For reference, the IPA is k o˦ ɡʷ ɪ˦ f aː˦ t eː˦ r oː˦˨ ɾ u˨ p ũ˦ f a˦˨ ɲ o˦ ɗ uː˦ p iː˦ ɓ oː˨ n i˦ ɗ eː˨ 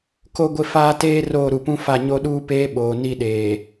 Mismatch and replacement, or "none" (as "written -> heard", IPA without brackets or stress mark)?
iː˦ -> eː˦